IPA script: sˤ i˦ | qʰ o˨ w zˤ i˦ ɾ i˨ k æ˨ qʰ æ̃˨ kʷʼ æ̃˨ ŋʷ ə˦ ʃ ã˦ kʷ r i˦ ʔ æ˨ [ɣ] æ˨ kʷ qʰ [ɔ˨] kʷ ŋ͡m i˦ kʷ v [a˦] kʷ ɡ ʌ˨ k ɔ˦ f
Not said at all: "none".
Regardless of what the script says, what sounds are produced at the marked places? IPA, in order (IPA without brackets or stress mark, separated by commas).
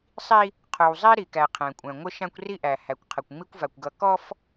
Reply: h, ə˨, a˨